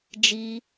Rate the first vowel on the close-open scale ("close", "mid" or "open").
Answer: close